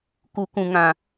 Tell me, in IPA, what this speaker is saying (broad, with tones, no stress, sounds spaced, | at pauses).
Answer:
k u˨ k ũ˨ ŋ ã˨